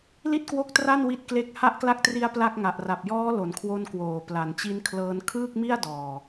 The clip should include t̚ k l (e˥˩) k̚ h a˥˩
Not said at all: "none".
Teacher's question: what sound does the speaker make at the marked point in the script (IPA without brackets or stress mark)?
e˥˩